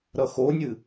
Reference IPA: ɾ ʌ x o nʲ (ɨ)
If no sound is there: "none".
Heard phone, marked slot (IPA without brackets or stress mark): ɨ